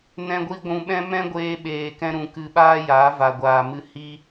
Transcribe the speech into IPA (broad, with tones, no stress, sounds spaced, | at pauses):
n ɛ̃˧ ɡʷ i˧ ɡʷ ũ˧ ɓ ɛ̃˦ m ɛ̃˦ ɡʷ eː˧ ɓ eː˨ k ɛ̃˧ ɾ ũ˨ k ɨ˧ ɓ aː˦ j aː˨˦ v a˨ ɡʷ aː˨ m ɨ˧ h i˦